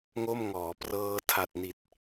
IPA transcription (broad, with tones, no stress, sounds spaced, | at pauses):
ŋ o˥˩ m ŋ ɔː˩˦ p r ɤː˧ tʰ a˨˩ t̚ n i˨˩ t̚